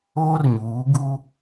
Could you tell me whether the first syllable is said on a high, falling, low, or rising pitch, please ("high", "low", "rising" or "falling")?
high